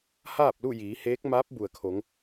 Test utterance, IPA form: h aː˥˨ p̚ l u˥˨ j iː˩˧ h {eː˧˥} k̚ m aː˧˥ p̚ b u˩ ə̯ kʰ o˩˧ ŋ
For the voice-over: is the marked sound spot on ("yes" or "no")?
yes